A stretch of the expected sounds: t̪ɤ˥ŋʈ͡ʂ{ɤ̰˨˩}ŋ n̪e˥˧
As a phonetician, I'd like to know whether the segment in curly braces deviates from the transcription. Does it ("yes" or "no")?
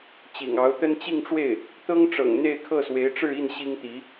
no